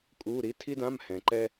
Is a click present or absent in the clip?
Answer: present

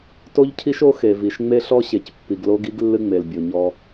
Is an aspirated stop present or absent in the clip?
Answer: present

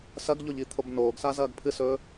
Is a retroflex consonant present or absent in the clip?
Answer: absent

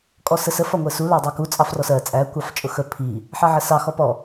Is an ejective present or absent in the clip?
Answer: present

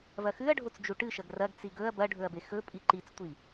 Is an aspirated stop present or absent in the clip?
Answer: absent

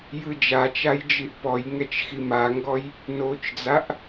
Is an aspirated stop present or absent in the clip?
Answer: absent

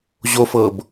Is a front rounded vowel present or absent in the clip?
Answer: absent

